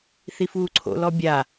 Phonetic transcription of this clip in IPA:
θ i f uː ǀʰ o̰ l ɔ bʲ a

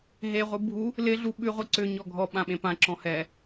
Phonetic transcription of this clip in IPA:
ɦ e ʁʷ ɯ bʱ u | l ɪ ɮ u ɓ ʉ ʁʷ ɯ ǀ ʏ ɲ ɔ ɡʱ ɔ ɓ ã ɓ ẽ p ã ǁ ɔ̃ h ɛ

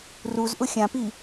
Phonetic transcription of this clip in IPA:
r u z ʔ ʊ xʲ ã p i

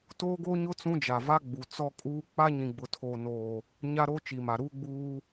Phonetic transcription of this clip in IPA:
t oː˦ ɡ oː˦ ɲ ʊ˦ t͡s ũ˦ d͡ʒ a˨ v a˦ ɡ͡b u˨ t͡s ɔ˦ kʼ uː˦ k͡p a˦ ɲ ĩ˨ ɡ͡b ʊ˨ tʰ oː˨ n oː˨ | ɲ a˦ ɾ oː˦ t͡ʃ i˨ m a˨ ɾ uː˦ ɡ͡b uː˦

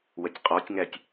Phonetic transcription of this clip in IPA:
w ə tʲ qʼ ɔ tʲ ŋ æ tʲ

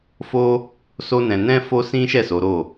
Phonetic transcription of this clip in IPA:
f o˦ | s o˦ n ɛ̃˧ n ɛ̃˦ f o˦ s ĩ˦ ʃ ɛ˦˨ s o˨˦ ɾ o˦˨

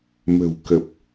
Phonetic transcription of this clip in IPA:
m ə̤˨˩ w k ə˨˩ p̚

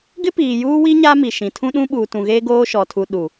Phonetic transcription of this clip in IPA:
ɡ ɪ˦ p iː˨ j uː˦ w i˦ ɲ a˦ m i˨ ʃ ĩ˨ tʰ ũ˦ ɗ ũ˦ ɓ uː˨ t ũ˨ ɣ eː˦ ɡ oː˦ ʃ ɔ˨ tʰ u˨ ɗ u˨

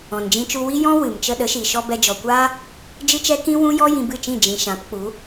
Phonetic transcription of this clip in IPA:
ɔ̃˨ n d͡ʒ ĩ˧ t͡ʃ u˧ w i˦ j ɔ̃˦ w ɨ˨ m t͡ʃ ə˧ ɗ ə˨˦ ʃ i˨ ʃ ɔ˧ b ɛ˧ d͡ʒ ɔ˨ kʷ aː˦ | d͡ʒ ɨ˦ t͡ʃ ɛ˦ k ĩ˦ w ũ˦ j ɔ˦ j ĩ˧ b ɨ˦˨ t͡ʃ ĩ˦˨ d͡ʒ ĩ˨ ʃ ã˨˦ p k͡p u˨˦

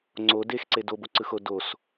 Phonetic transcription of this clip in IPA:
ŋ͡ǀ o d e x ǀ e d o b o ǀ ɯ x o d o s

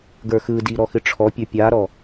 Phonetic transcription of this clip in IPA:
ɡ ə˞ x ɯ d i ɾ ɔ x ɨ ʈ͡ʂʰ ɔ pʲ ə˞ pʲ a ɾ ɔ

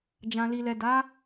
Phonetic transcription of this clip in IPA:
d͡ʒ ã˨ l i˨ l ɛ˨ d a˨˦

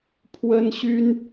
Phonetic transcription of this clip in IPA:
pʰ w ə˦ n ɕ y˦ n

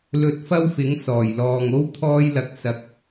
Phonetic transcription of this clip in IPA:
l ɵ˧ t̚ f ɐ˥ w f ɪ˨˥ ŋ s ɔː˨˩ j l ɔː˨ ŋ o˥ w t̪ʰ ɔː˧ j l ɐ˨˥ k̚ s ɐ˧ k̚

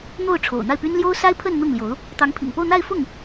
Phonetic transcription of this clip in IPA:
n̪ o˥˩ ʊ̯ ʈ͡ʂʰ o̰˨˩ ʊ̯ n̪ a˥˩ ɪ̯ p y˥ n l j o˥ ʊ̯ s a˥ ɪ̯ pʰ ə˥˧ n n̪ ʊ˥˩ ŋ l j o˧˥ ʊ̯ | t̪ ɑ˧˥ ŋ pʰ ḭ˨˩ ŋ p o˥˧ ʊ̯ n̪ a˥˧ ɪ̯ f ʊ˥˩ ŋ

